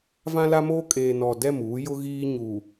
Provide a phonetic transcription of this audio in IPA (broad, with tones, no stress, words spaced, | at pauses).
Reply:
vã˦la˦moː˦ kʼeː˨nɔ˨ dɛ˦˨muː˨˦jʊ˦ɣiː˦ ɲu˨